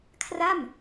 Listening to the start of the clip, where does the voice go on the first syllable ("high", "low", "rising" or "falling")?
falling